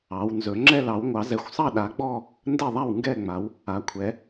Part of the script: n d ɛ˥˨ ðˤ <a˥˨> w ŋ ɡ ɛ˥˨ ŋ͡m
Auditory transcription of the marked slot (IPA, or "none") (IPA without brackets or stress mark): a˥˨